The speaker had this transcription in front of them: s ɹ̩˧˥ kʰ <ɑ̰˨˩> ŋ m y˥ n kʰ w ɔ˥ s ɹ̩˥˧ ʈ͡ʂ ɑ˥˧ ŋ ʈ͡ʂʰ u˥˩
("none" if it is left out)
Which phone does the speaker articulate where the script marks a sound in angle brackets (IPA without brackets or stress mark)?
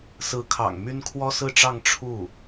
ɑ̰˨˩